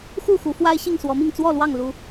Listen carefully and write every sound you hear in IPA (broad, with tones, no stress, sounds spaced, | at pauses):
x u˥˨ x u˨˦ f w a˦ ɪ̯ ɕ i˥˨ ŋ s w ɔ˨˦ m i˥˨ ŋ t͡s w ɔ˥˨ l w ɑ˥˨ ŋ l u˨˦